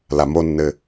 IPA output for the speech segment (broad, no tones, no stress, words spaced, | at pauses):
lamonːɘ